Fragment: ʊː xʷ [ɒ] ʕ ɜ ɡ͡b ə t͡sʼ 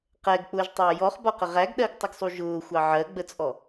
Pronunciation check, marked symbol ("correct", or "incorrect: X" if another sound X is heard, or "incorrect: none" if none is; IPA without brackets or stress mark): incorrect: ɑ